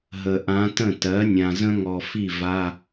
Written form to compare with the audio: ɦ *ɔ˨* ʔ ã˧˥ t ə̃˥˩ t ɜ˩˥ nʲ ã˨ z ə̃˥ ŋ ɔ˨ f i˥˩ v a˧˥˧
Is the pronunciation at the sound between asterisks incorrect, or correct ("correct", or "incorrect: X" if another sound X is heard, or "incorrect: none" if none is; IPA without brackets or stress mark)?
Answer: incorrect: ə˨